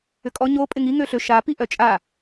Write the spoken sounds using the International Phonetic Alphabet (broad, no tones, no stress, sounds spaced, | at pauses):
ʏ kʼ ɔ ɲ o pʼ ɪ ŋ i ŋ ø ɬ ø ʃ a p i ʔ œ t͡ʃʼ a